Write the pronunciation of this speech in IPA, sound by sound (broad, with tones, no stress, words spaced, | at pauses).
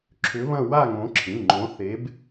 ǁʰʏ˨˦βɐ̃˦˨ wa˦˨ŋõ˨˦ǁʰĩ˩˧˩ŋ͡ǃõ˨˦ θe˨˦b